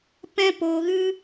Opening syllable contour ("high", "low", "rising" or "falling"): high